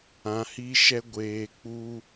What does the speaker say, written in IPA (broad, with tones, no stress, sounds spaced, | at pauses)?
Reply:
ã˧ h i˦ ʃ ɛ˦ ɡʷ eː˧ k͡p u˦